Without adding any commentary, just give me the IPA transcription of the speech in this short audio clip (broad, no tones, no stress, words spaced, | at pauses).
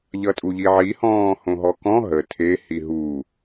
ʎʌtʼuʎiʕi hɔ̃ːhõɦɔkɔ̃ ɦə tʰe hiɦu